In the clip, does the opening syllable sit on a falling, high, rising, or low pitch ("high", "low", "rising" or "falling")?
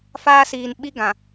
high